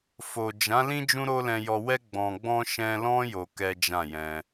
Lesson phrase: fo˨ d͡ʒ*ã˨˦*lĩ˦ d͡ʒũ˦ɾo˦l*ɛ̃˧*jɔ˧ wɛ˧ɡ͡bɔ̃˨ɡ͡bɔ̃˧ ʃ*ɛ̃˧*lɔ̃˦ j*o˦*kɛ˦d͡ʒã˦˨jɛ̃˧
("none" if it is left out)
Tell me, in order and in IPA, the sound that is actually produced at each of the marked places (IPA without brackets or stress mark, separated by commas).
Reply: ã˨˦, ɛ̃˧, ɛ̃˧, o˧